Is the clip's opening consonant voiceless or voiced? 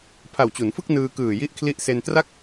voiceless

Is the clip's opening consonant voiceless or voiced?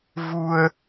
voiced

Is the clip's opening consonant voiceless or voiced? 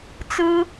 voiceless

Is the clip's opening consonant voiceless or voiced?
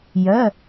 voiced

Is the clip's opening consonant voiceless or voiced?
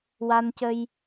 voiced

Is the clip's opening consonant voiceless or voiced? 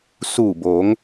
voiceless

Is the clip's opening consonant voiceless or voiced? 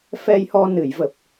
voiceless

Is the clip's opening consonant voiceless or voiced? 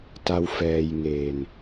voiceless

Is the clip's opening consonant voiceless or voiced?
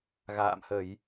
voiced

